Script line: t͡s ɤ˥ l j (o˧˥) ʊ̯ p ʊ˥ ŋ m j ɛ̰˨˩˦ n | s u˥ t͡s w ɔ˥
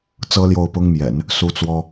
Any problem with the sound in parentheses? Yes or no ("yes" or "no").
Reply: yes